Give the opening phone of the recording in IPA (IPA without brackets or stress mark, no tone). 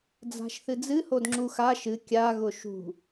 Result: d͡z